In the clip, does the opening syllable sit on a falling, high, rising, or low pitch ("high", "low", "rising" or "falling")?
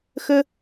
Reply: high